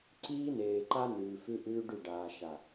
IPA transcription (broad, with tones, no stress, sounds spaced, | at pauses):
ǀ iː˦ n eː˨ ǃ a˦ n ʉː˨ f ʉ˦ ʔ ʉː˦ ɖ ʉ˦˨ ɖ aː˨ ʃ a˨